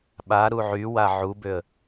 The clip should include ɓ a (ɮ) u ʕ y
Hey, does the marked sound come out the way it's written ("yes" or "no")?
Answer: no